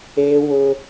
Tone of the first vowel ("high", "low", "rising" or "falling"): high